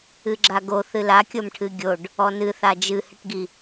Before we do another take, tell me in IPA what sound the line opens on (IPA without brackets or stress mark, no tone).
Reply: ɨ